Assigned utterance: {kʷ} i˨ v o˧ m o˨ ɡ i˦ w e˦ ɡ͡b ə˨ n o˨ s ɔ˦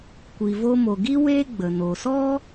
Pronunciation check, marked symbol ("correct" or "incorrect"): correct